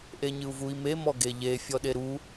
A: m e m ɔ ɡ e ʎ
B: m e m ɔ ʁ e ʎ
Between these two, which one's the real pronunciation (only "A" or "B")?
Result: A